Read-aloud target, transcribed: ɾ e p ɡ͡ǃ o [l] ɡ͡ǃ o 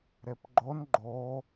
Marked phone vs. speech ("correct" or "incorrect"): incorrect